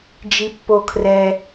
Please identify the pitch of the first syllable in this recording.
low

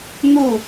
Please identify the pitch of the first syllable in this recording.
falling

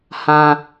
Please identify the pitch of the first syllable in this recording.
low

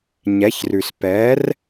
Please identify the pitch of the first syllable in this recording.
rising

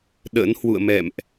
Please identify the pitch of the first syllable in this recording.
rising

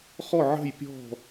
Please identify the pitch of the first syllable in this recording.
falling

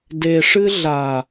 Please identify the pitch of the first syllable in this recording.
low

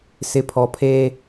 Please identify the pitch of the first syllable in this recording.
rising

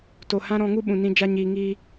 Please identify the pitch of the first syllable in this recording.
low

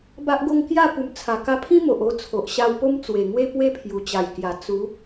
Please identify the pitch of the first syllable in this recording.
high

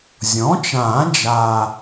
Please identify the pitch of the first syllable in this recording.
rising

